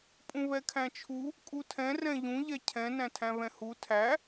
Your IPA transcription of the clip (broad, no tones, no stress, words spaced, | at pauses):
pʼũβɛkʰæ̃t͡ʃʰu | kʼutʰɛ̃ rɛ̃ʎũ ʎɛcʰɛ̃ næ̃tʰæ̃βɛ̃hu tʰæ